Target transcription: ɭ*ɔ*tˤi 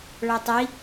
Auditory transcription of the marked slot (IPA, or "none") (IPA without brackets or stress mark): ɔ